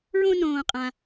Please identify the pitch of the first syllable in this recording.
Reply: high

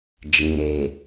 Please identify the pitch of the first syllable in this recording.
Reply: low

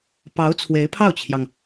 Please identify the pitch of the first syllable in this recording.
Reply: rising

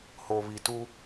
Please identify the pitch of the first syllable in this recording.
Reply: low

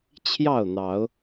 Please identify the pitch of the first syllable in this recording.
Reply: falling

